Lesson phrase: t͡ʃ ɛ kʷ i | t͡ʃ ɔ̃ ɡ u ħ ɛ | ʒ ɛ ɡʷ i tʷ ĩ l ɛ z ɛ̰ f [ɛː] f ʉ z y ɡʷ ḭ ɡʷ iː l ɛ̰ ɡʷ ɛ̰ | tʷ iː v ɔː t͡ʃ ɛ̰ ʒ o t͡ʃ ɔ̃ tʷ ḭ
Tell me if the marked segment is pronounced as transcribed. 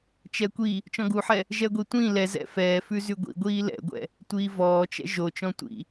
yes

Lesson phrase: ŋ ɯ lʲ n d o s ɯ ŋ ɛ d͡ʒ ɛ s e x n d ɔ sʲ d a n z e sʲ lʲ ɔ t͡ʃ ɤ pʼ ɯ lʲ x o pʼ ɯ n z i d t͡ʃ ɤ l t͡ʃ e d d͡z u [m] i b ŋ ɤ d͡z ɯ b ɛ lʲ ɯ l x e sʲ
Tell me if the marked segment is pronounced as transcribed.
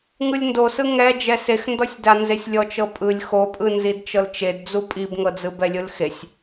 no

